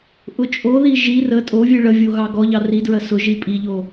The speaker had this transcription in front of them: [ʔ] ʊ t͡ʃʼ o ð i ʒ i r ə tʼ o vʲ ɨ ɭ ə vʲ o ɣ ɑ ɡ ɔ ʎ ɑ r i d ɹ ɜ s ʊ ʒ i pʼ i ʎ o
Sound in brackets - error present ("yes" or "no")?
no